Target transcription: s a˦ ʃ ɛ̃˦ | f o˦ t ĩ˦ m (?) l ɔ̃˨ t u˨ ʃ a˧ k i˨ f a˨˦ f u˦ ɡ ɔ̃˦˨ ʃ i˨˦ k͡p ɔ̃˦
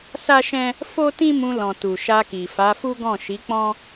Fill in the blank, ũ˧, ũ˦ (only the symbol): ũ˧